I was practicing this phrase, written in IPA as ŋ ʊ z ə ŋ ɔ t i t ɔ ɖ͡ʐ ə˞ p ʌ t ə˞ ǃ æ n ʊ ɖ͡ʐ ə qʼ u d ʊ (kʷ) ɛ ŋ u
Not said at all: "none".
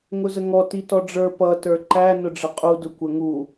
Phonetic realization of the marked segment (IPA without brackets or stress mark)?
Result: kʷ